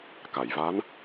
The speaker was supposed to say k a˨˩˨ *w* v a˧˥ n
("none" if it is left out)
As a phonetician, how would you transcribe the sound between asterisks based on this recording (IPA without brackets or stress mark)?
j